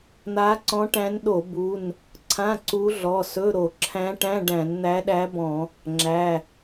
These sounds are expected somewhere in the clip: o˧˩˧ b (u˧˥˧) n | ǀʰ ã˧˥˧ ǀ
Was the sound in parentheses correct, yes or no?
no